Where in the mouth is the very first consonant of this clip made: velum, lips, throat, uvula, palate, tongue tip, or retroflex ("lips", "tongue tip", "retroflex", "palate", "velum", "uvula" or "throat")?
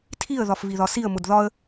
tongue tip